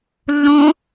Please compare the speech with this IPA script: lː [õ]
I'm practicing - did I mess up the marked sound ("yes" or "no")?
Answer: no